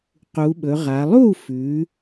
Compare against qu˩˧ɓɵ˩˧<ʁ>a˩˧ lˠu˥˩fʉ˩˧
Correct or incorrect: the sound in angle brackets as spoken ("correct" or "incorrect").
correct